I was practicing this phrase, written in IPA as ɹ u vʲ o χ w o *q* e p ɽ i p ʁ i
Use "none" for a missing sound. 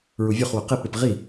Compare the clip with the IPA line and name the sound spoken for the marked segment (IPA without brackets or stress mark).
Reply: q